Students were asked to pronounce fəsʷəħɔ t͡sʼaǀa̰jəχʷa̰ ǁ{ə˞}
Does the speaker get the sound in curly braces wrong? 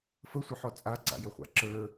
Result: no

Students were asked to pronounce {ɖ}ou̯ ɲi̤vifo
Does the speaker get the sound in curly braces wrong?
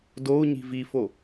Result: yes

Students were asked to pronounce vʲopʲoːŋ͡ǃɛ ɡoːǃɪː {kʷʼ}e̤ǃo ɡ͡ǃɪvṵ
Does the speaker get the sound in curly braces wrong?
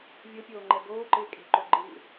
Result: yes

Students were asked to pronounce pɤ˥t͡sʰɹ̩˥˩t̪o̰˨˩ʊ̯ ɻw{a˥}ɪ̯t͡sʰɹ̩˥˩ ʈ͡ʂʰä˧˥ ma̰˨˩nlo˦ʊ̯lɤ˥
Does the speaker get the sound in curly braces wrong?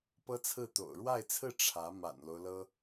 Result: yes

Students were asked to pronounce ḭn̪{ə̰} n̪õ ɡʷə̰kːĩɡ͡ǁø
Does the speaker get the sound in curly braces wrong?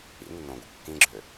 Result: yes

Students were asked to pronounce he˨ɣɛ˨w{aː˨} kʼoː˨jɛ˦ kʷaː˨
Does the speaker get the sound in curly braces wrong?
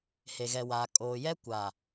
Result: no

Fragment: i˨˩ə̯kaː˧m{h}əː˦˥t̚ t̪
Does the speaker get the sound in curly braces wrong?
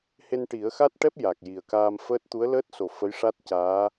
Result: yes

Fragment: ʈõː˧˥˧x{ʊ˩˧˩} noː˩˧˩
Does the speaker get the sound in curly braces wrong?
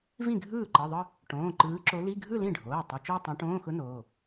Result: yes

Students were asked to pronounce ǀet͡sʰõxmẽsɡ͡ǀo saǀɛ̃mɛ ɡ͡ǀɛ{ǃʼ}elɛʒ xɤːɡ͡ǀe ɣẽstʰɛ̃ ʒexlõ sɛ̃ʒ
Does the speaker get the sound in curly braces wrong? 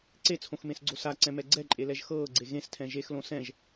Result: no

